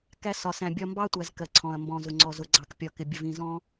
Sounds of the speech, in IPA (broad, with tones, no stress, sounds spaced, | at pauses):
k æ˦ s ɒ˨ s æ̃˨ bʲ ɒ˦ m b ɑ˦ tʷ æ˨ z k ɜ˨ ǀʰ ɔ̃˨ ɐ̯ m b ɔ̃˨ z ʊ˨ ŋ͡ǀ ɔ˨ z ʊ˨ ɡ͡ǀ ɑ˨ k pʲ ɒ˨ k ɪ˨ bʲ ə˨ v ĩ˨ z ɔ̃˦